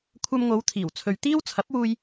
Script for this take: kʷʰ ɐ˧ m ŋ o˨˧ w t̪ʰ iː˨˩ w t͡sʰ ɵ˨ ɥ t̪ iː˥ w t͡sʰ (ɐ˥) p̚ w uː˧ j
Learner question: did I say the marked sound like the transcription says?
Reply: no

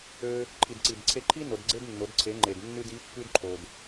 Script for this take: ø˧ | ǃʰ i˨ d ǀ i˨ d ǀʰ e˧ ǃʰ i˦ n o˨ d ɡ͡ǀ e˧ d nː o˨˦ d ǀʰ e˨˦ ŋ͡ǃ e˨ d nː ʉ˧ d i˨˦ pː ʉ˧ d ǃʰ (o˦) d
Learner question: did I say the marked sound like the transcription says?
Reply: no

